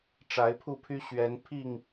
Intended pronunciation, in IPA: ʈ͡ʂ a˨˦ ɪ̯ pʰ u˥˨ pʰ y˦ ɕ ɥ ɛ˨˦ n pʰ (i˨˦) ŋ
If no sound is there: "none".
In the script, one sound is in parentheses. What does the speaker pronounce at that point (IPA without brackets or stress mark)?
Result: i˥˨